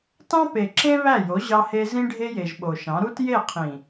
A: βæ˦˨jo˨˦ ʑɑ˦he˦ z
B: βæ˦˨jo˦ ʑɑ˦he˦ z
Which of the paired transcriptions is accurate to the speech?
A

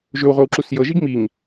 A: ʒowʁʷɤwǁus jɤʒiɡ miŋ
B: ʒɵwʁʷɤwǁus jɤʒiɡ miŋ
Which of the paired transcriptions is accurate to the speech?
B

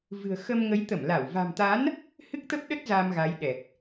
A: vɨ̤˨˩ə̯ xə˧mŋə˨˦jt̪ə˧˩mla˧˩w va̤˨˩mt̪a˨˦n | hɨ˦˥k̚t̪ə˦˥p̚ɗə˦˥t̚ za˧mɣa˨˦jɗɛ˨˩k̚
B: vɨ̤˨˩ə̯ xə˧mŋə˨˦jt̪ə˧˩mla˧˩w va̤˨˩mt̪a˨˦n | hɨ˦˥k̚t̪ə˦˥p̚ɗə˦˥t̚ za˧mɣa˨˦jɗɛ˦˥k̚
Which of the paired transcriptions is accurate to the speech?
A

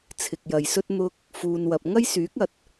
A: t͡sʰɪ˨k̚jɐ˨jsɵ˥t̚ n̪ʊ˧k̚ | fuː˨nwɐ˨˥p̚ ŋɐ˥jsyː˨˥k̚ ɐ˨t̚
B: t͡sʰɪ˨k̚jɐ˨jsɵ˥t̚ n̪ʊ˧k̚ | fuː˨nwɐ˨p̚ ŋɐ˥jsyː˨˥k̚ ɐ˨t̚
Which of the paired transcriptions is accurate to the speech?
B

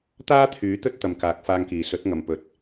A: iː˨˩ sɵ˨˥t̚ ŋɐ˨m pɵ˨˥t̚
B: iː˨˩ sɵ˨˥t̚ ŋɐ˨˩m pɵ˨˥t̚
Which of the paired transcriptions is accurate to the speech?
A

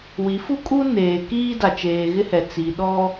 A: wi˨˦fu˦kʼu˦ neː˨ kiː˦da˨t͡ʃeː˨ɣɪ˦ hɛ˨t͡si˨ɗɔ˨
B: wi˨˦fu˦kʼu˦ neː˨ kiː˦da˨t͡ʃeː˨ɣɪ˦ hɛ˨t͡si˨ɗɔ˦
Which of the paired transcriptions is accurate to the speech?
B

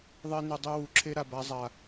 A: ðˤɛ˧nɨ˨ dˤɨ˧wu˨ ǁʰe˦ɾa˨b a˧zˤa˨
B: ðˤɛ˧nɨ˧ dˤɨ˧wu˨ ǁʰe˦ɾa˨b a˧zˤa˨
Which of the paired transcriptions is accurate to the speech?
A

